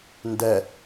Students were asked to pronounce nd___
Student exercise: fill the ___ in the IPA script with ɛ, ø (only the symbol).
ɛ